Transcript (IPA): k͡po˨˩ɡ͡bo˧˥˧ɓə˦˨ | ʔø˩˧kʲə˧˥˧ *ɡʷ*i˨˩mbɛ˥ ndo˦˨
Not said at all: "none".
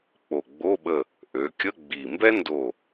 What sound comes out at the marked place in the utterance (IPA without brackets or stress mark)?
ɡ͡b